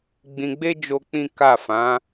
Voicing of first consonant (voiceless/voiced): voiced